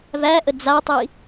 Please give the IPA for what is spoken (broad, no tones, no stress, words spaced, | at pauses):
væʔə d͡zatˤi